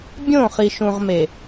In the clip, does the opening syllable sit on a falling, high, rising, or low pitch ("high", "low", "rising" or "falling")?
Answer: falling